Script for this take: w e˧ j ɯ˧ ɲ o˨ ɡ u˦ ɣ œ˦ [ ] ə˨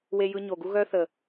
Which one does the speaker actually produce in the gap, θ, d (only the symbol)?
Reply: θ